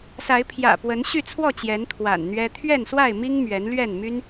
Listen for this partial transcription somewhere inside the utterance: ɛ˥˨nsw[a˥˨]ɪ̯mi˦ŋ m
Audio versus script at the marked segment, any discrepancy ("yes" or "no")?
no